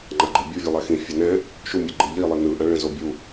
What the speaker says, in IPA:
ŋ͡ǃ a ɡ͡ǃ ɯ bʲ u vʲ ɯ lˠ ɛ x ĩ fʲ ɛ n ɛ̃ | ʃ u mʲ a ɡ͡ǃ ɯ ʎ i lˠ i n ɯ ʔ ã ɭ ɛ̃ z o bʲ u

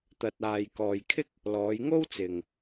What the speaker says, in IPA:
t̪ ɐ˧ t̚ aː˨ j k ɔː˨ j kʰ ɪ˥ k̚ | l ɔː˨˧ j ŋ o˥ w t͡s ɪ˨ ŋ

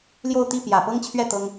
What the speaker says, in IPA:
l j o˥˧ ʊ̯ t̪ i˥˩ p j ä˨˩ p ɤ˥ ŋ t͡ɕʰ ɥ ɛ˥˩ t̪ ɤ˥ ŋ

